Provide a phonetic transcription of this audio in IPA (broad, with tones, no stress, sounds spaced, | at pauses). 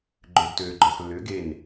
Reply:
ɡ͡ǃ ø˩ ɡ t øː˩ ɡ͡ǃ ɔ˩ x lː ʏː˩˥ ɡ e˥˩ n